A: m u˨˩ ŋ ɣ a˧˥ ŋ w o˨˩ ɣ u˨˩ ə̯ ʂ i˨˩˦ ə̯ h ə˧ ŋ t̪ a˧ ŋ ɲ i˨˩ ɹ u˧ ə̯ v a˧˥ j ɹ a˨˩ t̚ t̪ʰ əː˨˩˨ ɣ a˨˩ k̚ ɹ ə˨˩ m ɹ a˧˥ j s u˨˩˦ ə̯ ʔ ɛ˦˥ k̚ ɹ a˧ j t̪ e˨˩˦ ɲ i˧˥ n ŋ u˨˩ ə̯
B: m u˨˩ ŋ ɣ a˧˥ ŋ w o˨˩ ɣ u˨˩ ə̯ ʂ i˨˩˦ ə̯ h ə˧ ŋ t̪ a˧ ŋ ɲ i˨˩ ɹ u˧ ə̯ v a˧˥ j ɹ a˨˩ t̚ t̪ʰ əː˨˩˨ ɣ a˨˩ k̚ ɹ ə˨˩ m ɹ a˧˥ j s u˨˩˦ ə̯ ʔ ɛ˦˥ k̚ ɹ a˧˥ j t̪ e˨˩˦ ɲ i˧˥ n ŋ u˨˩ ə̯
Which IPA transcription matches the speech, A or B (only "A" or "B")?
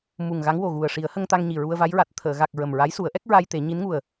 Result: A